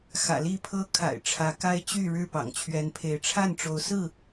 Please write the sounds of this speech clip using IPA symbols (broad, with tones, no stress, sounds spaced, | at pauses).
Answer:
x ä̰˨˩ l i˥˨ pʰ ɤ˦ kʰ a̰˨˩ ɪ̯ ʈ͡ʂʰ ä˨˦ k a˦ ɪ̯ t͡ɕ y˥˨ ɻ ɻ̩˥˨ p ɑ̰˨˩ ŋ t͡ɕʰ ɥ ɛ˨˦ n pʰ e˨˦ ɪ̯ ʈ͡ʂʰ a˥˨ n ʈ͡ʂ o˨˦ ʊ̯ s ɹ̩˥˨